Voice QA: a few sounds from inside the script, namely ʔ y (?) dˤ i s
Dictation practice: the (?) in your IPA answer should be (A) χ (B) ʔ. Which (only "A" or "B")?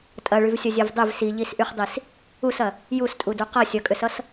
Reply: A